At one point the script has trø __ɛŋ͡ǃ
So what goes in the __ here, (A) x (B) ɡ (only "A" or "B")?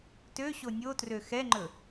A